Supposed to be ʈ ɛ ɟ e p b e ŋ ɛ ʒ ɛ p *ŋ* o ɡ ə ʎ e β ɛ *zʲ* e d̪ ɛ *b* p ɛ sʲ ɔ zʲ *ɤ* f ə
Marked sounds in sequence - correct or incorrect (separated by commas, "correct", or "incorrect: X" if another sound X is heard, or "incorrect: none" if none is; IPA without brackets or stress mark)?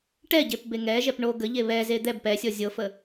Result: incorrect: ɳ, incorrect: z, correct, correct